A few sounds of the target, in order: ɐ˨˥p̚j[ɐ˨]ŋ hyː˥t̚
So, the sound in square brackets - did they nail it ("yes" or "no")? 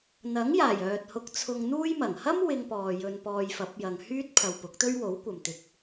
yes